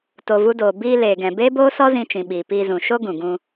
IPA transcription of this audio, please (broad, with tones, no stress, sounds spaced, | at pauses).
t o˧ v u˦ d oː˧ b iː˧ l eː˨ ɡ ɛ̃˨ b eː˦ b oː˦ s ɔ˦ z ĩ˧ t͡ʃ ĩ˨ ɓ iː˨ p iː˧ z ũ˨ ʃ o˦ ɡ ũ˨ ɡ ũ˧